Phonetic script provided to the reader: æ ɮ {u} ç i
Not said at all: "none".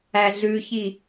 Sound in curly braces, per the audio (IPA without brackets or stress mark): ʉ